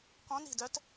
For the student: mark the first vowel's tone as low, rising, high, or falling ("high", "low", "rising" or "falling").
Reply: rising